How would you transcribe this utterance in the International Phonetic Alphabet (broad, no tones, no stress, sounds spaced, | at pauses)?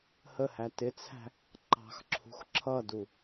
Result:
h ə h æ t ɪ t͡sʰ æ̤ | ǃ ɑ̤ x ǁʰ ṳ x ǁʰ ʌ d u